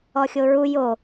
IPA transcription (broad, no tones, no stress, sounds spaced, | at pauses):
ɔ xʲ o ɹ u j o